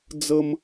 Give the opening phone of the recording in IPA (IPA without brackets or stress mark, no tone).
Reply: d͡z